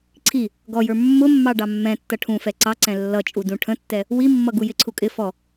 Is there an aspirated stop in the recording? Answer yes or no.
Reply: yes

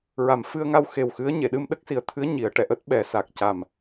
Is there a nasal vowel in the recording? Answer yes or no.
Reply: no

